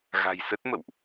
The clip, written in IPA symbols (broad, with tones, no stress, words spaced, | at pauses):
ɣa̤˨˩jsə˦˥t̚ mə̰˧˨wʔ